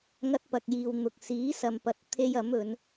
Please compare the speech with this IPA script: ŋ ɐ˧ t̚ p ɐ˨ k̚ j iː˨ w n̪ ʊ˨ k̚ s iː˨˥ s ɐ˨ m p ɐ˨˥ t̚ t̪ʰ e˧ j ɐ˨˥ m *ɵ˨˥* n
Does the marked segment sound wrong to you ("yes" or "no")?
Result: yes